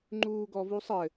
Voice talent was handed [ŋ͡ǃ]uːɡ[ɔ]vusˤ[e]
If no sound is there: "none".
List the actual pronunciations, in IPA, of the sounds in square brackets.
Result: ŋ͡ǃ, ɔ, ɘ

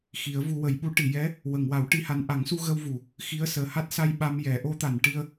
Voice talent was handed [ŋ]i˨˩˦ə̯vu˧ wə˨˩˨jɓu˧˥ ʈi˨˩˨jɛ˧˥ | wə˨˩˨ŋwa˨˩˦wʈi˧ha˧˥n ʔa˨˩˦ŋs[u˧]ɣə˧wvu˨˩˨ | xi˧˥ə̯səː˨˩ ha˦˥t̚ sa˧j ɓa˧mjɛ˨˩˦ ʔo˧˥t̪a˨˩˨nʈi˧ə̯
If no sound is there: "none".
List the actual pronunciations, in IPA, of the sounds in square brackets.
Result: x, u˧

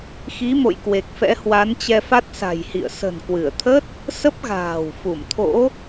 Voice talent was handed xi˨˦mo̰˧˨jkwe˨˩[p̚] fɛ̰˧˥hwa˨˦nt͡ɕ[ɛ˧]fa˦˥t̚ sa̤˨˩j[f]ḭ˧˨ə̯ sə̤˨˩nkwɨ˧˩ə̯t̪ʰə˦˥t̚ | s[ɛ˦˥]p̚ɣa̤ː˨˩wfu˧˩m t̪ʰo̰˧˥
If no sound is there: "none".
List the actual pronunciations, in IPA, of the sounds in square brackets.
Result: k̚, ɛ˧, h, ə˦˥

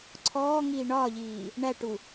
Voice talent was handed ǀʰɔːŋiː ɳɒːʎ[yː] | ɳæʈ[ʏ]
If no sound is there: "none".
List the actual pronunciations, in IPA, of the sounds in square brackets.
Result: iː, u

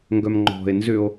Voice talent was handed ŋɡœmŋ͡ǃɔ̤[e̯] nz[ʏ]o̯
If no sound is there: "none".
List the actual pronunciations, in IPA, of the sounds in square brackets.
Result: e̯, ʏ

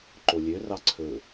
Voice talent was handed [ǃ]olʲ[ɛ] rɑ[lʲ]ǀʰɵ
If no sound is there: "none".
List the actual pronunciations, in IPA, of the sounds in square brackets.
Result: ǃ, ø, none

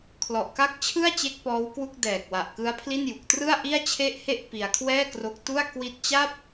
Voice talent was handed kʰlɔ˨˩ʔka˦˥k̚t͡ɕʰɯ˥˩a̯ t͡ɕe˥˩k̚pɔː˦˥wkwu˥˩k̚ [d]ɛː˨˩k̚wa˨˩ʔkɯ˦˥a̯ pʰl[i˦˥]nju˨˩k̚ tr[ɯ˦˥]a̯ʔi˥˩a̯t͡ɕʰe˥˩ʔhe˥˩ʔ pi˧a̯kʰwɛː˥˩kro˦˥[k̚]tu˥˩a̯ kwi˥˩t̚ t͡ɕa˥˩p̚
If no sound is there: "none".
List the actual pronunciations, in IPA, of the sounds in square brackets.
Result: d, i˥˩, ɯ˥˩, k̚

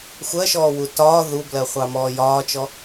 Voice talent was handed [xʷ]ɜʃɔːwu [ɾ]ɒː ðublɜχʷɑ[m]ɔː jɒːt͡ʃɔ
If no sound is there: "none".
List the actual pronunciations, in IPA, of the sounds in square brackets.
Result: xʷ, t, m

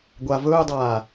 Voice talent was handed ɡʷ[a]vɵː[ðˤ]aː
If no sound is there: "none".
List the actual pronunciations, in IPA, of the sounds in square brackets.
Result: a, dˤ

